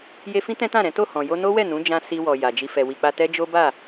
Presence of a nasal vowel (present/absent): present